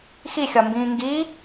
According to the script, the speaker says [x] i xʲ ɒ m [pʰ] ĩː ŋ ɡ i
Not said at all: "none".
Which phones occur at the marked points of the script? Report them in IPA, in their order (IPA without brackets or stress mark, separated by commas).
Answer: x, b